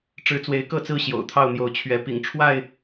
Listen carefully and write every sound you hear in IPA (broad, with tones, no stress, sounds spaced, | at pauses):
ʈ͡ʂ ɻ̩˨˦ t͡s w e˨˦ ɪ̯ k ɤ˥˨ t͡s ɹ̩˥˨ ɕ j o̰˨˩ ʊ̯ t̪ʰ ɑ˥˨ ʊ̯ n̪ j o˨˦ ʊ̯ t͡ɕʰ ɥ ɛ˨˦ p ḭ˨˩ ŋ ʈ͡ʂʰ w a˥˨ ɪ̯